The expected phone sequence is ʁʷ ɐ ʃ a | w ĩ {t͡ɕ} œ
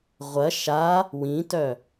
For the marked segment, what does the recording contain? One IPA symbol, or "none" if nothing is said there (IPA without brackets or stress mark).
t